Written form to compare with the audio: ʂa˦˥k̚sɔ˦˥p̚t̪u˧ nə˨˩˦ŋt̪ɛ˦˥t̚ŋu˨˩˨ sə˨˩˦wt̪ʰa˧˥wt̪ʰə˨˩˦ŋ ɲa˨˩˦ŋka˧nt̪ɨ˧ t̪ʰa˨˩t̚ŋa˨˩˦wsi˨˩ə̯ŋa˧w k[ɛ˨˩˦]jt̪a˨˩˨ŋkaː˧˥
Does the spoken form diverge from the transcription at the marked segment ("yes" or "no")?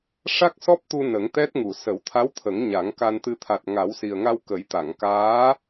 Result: yes